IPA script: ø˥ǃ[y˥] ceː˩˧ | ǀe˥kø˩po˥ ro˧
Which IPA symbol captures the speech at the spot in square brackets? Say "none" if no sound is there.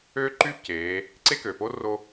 y˥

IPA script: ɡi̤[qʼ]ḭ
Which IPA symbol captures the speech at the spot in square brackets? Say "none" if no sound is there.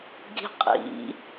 qʼ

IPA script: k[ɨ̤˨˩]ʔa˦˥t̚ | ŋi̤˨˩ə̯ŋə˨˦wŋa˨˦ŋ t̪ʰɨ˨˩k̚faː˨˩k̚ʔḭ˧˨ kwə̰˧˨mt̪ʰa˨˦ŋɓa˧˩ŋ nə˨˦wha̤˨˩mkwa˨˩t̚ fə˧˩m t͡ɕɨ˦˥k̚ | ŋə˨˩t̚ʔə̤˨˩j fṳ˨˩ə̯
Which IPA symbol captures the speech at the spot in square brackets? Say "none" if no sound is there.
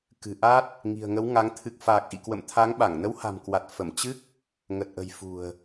ɨ̤˨˩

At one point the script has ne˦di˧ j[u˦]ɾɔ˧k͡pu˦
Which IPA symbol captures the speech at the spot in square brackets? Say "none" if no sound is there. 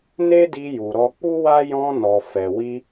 u˨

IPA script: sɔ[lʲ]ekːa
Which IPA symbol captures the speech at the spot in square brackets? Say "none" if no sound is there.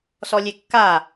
lʲ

